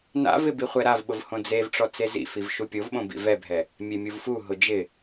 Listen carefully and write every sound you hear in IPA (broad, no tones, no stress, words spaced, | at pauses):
na̰vɪ biχʷɛɾavɓʊv hõd͡zevʈ͡ʂɔ t͡sezḭfiv ʃupʲovɓõ bḭvɛbʱɛ | mʲemʲuvfuɦʊ d͡ʒɪ